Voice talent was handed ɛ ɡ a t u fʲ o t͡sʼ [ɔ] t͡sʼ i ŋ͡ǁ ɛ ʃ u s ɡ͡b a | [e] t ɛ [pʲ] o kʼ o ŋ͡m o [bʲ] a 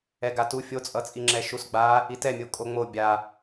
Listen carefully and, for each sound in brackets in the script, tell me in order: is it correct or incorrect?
incorrect, incorrect, incorrect, correct

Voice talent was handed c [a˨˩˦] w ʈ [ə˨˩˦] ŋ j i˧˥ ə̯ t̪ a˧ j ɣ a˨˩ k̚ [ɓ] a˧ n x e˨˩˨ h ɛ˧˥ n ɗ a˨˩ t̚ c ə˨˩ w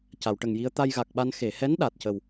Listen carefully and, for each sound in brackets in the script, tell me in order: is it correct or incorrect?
incorrect, incorrect, correct

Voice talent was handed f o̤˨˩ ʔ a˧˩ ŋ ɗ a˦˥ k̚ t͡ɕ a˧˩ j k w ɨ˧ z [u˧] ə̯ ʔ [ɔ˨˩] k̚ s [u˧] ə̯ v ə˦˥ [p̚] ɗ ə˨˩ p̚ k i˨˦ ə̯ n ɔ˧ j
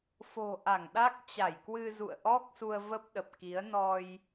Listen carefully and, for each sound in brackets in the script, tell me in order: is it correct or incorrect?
incorrect, incorrect, correct, correct

